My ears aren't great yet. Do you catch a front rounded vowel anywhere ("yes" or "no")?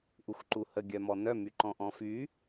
yes